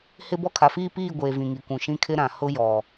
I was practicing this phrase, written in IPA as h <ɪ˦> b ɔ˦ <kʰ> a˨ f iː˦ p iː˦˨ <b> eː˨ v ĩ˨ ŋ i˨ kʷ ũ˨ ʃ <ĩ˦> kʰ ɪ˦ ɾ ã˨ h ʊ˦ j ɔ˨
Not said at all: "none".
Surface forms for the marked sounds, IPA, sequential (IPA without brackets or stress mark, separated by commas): ɪ˦, kʰ, ɡʷ, ĩ˦